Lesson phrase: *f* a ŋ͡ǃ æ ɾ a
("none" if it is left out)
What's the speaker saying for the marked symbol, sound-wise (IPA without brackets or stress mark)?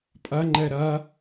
pʼ